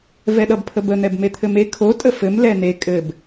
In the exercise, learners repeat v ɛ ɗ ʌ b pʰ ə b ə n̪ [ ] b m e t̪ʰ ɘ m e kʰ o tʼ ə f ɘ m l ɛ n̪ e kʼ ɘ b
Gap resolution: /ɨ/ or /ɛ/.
ɛ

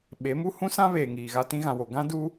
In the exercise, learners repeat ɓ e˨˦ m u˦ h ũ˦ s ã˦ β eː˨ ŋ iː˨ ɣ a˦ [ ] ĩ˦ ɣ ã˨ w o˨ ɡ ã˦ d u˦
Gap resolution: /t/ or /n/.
t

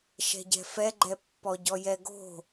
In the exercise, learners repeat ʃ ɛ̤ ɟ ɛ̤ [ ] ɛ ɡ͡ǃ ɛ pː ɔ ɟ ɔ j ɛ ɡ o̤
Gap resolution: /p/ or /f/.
f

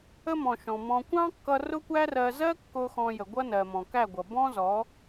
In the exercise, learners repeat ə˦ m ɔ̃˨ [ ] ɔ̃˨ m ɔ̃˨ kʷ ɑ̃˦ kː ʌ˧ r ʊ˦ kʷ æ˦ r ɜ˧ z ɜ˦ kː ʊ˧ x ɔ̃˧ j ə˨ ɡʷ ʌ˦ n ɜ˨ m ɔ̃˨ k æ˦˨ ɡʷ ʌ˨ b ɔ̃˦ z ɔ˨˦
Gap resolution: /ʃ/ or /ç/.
ʃ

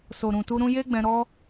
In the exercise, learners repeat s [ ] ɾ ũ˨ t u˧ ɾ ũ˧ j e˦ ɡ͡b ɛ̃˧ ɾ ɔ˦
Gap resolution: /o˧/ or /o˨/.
o˨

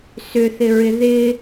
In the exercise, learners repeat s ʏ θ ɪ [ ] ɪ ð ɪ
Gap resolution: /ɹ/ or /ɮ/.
ɹ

